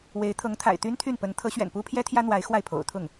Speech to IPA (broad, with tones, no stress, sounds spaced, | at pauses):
w e˧˥ ɪ̯ t̪ʰ ɤ˧˥ ŋ t̪ʰ a̰˨˩ ɪ̯ t̪ y˥ n t̪ʰ y˥˩ n p ə˧˥ n t̪ʰ ɤ˧˥ ɕ ɥ ɛ̰˨˩ n p u˥ pʰ j ɛ˥ t̪ʰ j ä˥ n̪ w a˧˥ ɪ̯ x w a˥˩ ɪ̯ pʰ o̰˨˩ ʊ̯ t̪ʰ ʊ˥˩ ŋ